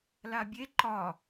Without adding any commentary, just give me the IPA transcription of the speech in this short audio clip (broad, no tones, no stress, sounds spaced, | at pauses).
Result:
l a bʲ e ǃ ɒ